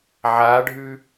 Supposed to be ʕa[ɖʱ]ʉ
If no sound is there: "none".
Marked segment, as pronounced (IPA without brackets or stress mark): ɖʱ